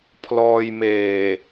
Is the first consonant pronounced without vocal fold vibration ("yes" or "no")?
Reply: yes